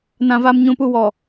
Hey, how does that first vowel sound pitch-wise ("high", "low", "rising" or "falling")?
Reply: low